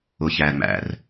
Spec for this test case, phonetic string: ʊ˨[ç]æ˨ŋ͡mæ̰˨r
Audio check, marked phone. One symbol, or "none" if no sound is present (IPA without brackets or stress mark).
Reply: ç